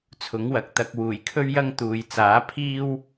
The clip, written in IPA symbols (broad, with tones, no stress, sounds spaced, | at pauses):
t͡sʰ ʊ˨˥ ŋ w ɐ˨ k̚ t̪ ɐ˧ k̚ w uː˨˩ j kʰ ɵ˥ ɥ j ɐ˥ ŋ t̪ uː˨ j t͡s aː˨˥ pʰ iː˥ w